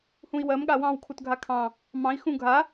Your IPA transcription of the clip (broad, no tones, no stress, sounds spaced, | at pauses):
h ũ i̯ w ɜ m ɠ a w ɑ̃ w kʰ u t ɡʱ a kʰ ɑ̃ | m ɑ̃ i̯ x ũ ɡʱ a